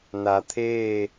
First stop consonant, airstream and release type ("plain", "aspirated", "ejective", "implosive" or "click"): aspirated